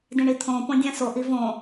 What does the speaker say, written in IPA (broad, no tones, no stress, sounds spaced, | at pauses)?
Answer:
d ĩ ɳ i t̪ʰ õ p õ dʲ ã s o ʔ i v õ